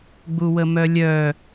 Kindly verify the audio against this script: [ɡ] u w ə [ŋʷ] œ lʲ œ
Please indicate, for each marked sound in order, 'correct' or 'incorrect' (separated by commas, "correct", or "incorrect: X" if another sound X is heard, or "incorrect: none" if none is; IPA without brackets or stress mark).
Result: incorrect: ɡ͡b, incorrect: m